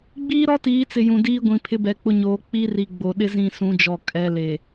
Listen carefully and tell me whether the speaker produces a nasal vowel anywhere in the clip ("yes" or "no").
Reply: yes